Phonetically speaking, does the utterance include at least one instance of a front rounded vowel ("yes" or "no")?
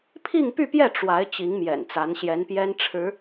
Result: yes